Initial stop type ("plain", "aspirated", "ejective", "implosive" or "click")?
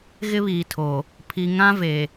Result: aspirated